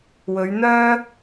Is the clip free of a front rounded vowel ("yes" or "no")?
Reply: no